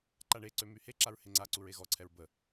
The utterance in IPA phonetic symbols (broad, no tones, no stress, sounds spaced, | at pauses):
ǃ a ɳ e ǀ ø m y h e ǁ a ɹ h e ŋ͡ǀ a ǀ u ɹ e ɣ ɔ ǀʰ ɛ ɹ b ə